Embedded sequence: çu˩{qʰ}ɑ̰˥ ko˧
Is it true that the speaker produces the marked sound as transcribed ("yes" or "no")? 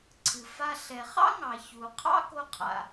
yes